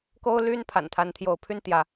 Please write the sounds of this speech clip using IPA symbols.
k o˦ ʊ̯ l y˦ n pʰ a̰˨˩ n t̪ʰ a˨˦ n t̪ʰ j o˨˦ ʊ̯ pʰ y˦ n t̪ j ä˨˦

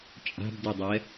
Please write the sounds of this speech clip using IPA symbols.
t͡ʃʼ a̤ b d ɯ dˤ ɛ

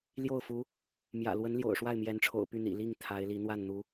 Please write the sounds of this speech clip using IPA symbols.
l j o˥˩ ʊ̯ f u˧˥ | m j ä̰˨˩ l w ə˧˥ n l j o̰˨˩ ʊ̯ ʂ w a˥˩ ɪ̯ m j ɛ˧˥ n ʈ͡ʂʰ o̰˨˩ ʊ̯ p y˥˩ n̪ ḭ˨˩ l i˥˩ ŋ t̪ʰ a˧˥ ɪ̯ l i˧˥ n̪ w a˥˩ n n̪ u˧˥

